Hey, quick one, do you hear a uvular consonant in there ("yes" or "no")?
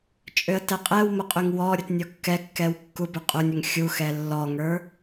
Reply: yes